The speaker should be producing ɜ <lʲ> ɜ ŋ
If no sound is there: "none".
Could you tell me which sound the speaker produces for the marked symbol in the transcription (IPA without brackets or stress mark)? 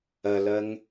l